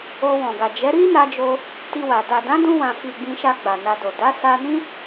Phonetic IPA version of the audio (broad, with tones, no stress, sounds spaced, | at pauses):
o˧ w ɔ̃˨ ɡ a˨ d͡ʒ ɛ˨˦ ɾ i˦ n a˧ d͡ʒ o˧ | t i˧ w a˨ d a˨ d ã˨˦ d ũ˧ w ã˨ f i˨ ɡ͡b ĩ˧ ʃ a˧ ɡ͡b a˨ n a˧ d o˨ d a˨˦ s a˧ n ĩ˦